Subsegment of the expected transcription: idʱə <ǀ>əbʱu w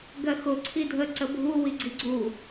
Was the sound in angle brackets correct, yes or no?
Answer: yes